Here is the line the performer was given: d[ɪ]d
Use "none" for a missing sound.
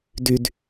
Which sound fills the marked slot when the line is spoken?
y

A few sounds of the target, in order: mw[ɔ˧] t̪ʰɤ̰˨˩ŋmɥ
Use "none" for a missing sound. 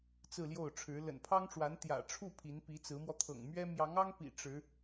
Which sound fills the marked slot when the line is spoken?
ɔ˧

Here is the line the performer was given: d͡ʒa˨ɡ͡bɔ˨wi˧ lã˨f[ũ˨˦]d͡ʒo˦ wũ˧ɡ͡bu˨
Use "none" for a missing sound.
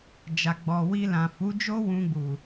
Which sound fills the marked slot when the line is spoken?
u˨˦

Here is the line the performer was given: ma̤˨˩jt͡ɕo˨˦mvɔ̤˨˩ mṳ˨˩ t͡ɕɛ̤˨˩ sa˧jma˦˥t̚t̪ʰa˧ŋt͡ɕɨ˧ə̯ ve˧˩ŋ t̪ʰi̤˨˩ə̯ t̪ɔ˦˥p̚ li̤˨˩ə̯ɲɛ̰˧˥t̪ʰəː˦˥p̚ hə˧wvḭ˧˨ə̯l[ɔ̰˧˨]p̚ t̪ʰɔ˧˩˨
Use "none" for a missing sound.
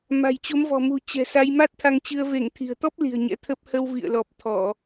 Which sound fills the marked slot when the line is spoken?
ɔ˨˩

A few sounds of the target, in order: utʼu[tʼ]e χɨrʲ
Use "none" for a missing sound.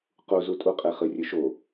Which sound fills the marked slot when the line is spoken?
qʼ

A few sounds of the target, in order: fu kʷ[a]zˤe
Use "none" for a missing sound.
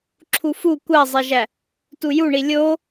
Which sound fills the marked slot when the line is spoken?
æ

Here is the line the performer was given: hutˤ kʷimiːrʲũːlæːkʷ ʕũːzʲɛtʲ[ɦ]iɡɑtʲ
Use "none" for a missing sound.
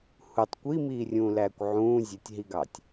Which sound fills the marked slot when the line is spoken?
ɦ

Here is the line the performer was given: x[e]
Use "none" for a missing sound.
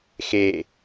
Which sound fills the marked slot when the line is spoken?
e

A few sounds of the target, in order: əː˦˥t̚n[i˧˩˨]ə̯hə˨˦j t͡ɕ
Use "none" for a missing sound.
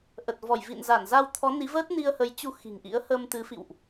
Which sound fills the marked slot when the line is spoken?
i˧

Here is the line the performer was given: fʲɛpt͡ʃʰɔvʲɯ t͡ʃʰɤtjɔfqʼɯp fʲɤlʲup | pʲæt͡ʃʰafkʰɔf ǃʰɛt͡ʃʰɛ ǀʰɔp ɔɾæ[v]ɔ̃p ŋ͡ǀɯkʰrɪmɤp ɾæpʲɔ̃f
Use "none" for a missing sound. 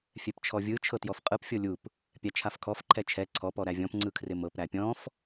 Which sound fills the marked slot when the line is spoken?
vʲ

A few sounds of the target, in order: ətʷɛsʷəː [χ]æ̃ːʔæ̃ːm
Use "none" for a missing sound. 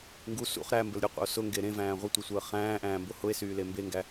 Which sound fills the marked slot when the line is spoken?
χ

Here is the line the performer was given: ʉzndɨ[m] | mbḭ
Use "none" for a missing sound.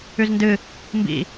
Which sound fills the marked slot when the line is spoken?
none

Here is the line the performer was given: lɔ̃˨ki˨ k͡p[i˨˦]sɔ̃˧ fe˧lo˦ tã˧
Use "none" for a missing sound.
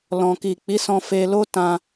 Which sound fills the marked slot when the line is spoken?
i˨˦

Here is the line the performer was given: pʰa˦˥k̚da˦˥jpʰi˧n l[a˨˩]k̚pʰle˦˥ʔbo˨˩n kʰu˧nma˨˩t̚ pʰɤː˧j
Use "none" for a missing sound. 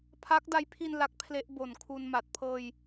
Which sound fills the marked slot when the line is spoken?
a˦˥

